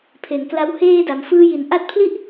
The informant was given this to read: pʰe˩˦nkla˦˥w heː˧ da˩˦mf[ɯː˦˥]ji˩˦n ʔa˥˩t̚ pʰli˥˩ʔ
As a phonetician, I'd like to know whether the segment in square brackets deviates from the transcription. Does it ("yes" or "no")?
no